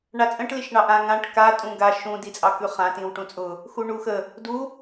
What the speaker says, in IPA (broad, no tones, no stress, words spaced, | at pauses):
ɳat͡sʼə̃ʈ liʃɳɑʔã ŋãʈ ka tʼũɡa ʃũ dit͡sʼɑkʉχã tĩwʈũt͡sʼʊ | xuɳuxə | du